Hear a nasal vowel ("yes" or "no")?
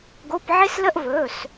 no